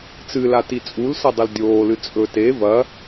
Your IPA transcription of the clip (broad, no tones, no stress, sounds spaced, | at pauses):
t͡s ɨ l a t i t͡sʼ u l s ɐ dˤ ɵ l dʲ oː l ɨ t͡sʼ ɵ t e v ɐ